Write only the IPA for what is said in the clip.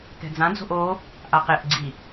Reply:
kɛ̤d͡zãd͡zo̤ʔ o | ʔaqeʔɡ͡ǀi

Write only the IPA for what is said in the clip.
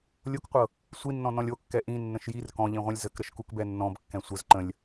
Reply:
lʲokqʷɤ | sʷinːɔ̃ nɔ̃lʲokːɛ ʔĩ nːə̃ʃjir kɔ̃ʎĩʁʷɛ̃lʲ zəkɾəʃkukbɛ nːɔ̃b kːɛ̃sʷəz ǃə̃lʲ

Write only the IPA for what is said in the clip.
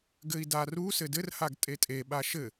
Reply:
ɡɘi̯daru sɘdɘr haɡtʼetʼe ɓaʃɘ

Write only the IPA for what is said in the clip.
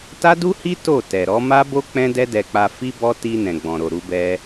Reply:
ta˦du˦hi˦ to˦˨tɛ˨ɾɔ˨˦ ma˦ bo˦ k͡pɛ̃˦dɛ˦dɛ˧k͡pa˧ fi˦bɔ˦ ti˧ nɛ̃˨ɡ͡bɔ̃˨ ɾo˨ ɾu˨˦bɛ˦

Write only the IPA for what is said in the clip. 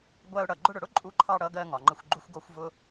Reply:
ɡʷæ˧ʊ̯ ɽʌ˩ ɡ͡ǃʊ˧ɽʊ˩ɽʊ˥ ǃʼu˧ǃʰɑ˧ ɽʌ˧ɡɜ˧ ŋɒ˩ŋ͡ǃə˧xʷɡ͡ǃu˥xʷɡɔ˥xʷ vʊ˥

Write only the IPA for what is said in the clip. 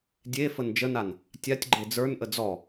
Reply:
dʲe fənd͡ʒənan | tʲatʲ ɡ͡ǃed͡zə˞nʔə d͡zɔ

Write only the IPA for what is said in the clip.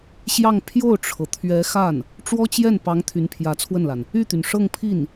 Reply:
ɕjɑ˥˧ŋ pʰjo˥˩ʊ̯ʈ͡ʂʰɤ˩t̪ʰɥɛ˧˥xa˥˩n | ʈ͡ʂwɔ˥t͡ɕjɛ˥˩npɑ˧˥ŋ t̪ʰy˧˥npʰjä˧˥t͡sʰwə˥˩nla˩n | y˥˩t̪y˩n ʂɤ˥˧ŋpʰi˥˩n

